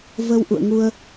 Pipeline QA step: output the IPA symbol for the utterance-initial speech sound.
v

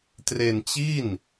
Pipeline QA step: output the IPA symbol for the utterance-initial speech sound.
t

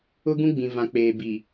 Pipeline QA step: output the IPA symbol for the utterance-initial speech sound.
ʊ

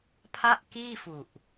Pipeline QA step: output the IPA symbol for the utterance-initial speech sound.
pʰ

